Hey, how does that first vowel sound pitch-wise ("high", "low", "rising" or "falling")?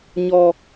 low